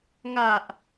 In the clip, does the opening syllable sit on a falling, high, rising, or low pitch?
low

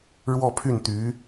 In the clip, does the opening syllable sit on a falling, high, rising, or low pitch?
falling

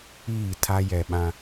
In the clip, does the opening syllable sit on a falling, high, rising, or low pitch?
falling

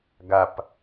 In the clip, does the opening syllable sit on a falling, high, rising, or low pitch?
low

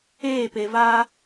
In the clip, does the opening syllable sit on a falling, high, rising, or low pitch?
falling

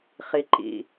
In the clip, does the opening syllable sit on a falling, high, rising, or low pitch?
low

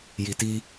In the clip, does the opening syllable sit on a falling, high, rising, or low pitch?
low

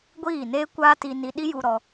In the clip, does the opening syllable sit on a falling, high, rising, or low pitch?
falling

